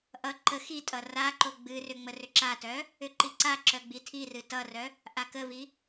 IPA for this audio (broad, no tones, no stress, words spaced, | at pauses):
ʔʌ ǃə xitʼʌ raǃo ɡ͡bɨrʏ ŋ͡mərʏǁatœ | ʏǃiǀaǁœ ɡ͡bitʰirɨ tʌrœ | ʔakəvi